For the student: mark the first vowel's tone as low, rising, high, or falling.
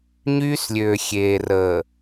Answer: high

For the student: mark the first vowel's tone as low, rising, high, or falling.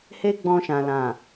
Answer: high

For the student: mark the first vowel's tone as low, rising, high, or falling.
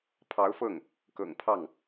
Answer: rising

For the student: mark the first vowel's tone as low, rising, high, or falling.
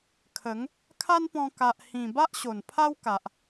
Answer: rising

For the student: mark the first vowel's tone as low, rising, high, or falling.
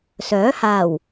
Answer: rising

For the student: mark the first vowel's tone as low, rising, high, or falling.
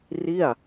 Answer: falling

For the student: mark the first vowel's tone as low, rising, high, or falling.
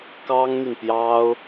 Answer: high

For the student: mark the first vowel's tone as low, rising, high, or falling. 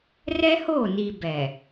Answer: high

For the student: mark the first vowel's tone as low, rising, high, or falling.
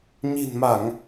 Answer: low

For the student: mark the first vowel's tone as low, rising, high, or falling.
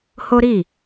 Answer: high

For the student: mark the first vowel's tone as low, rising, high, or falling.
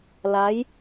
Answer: rising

